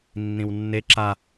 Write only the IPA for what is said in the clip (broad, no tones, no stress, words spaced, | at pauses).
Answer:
nːĩwnːe ǁa